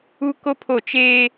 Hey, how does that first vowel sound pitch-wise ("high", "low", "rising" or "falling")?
high